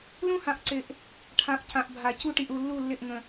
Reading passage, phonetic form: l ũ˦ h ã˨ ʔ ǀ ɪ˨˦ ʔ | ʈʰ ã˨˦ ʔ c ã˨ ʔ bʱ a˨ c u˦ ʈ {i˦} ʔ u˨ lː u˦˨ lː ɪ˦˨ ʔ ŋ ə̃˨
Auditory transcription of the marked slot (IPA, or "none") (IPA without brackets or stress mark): i˨